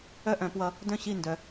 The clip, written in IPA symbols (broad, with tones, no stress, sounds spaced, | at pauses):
œ˥˩ ʔ œ̃˧˩˧ p w ʌ˨˦ | d œ̃˥˧ ɕ i˥˩ n d œ˨˦